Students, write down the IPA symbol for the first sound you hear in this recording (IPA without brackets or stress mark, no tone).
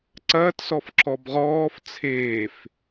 ǀ